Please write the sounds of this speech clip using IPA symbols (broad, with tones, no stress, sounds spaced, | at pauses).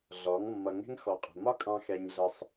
ɮ ɔ˨˦ ŋ mː ʌ˨ ŋ ɛ̤˦ ŋ x ɔ˨ qʼ ə̤˨ m ɒ˦ kʼ ɑ̃˧ x ɛ˧ ɲ ɮ ə˧ sˤ